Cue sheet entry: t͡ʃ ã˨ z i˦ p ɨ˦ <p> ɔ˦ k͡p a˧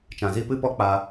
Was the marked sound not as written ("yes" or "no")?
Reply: no